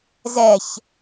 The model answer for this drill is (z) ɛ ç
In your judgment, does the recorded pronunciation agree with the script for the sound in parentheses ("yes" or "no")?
yes